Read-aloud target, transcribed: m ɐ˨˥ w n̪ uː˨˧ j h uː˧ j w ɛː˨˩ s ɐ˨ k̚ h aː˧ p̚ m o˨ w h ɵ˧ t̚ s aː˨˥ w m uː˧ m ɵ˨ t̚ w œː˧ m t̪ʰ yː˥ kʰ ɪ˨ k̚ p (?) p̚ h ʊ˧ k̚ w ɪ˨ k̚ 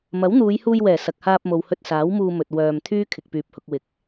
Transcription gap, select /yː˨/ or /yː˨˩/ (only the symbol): yː˨